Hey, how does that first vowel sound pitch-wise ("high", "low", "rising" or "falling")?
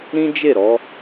high